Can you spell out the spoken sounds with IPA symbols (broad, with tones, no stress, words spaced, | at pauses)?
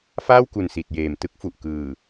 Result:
faː˥˩wku˨˩n si˨˩t̚jeː˨˩m tɯ˥˩k̚fu˨˩ʔ kɯː˨˩